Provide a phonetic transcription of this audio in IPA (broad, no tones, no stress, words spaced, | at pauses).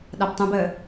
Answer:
ɗabtˤũbəː